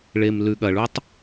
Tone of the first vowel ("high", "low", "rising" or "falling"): low